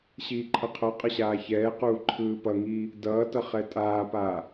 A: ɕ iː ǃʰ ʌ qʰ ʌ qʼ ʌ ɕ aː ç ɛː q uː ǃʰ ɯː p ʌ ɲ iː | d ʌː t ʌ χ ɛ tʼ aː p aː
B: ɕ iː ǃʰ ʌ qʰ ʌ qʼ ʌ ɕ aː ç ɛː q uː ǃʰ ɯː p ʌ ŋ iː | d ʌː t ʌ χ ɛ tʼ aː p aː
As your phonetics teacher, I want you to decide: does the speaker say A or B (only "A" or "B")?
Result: B